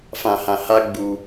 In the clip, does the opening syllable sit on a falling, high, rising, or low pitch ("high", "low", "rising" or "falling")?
low